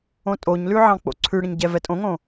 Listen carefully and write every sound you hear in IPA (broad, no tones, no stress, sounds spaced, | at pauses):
õ tʼ o ɲ l ʉ ʕ ɑ̃ k͡p o̰ ǀʰ ʉ ɽ ə̃ ɲ ɟ ɛ v ɛ tʼ õ ŋ õ